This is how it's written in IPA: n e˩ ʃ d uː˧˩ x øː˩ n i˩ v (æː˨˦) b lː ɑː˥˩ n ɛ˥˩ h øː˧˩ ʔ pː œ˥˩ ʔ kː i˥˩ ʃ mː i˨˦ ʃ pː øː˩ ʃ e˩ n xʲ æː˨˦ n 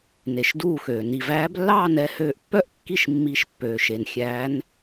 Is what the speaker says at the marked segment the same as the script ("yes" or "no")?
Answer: yes